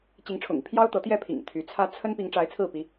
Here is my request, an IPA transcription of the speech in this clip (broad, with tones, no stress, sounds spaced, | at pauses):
t͡ɕ i˧˥ ŋ ʈ͡ʂʰ ʊ̰˨˩ ŋ i˦ pʰ j ɑ˥ ʊ̯ t̪ ɤ˧˥ t̪ j ɛ˥˩ pʰ ḭ˨˩ ŋ t̪ʰ y˧˥ t͡sʰ ä˥ t͡sʰ ə˥ n p i˧˥ ŋ ʈ͡ʂ a˧˥ ɪ̯ t͡sʰ ɹ̩˥˩ p i˧˥